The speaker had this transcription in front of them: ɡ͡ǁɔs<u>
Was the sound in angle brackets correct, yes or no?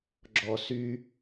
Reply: no